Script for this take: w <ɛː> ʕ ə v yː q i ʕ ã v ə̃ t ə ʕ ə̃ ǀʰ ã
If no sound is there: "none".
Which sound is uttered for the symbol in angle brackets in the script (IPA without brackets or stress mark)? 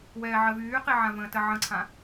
ɛː